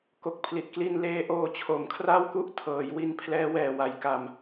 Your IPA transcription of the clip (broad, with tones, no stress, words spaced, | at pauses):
ko˨˩k̚pʰli˨˩t̚kli˧n leː˧ʔoː˧ t͡ɕʰo˩˦mkʰra˥˩wku˦˥ʔtʰɤː˩˦j wi˧npʰlɛː˦˥wɛː˨˩wa˩˦j ka˧m